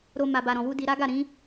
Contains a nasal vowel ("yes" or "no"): yes